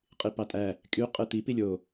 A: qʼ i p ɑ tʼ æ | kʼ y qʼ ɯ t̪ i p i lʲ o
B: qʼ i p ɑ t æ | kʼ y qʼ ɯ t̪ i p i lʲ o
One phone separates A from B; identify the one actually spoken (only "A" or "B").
A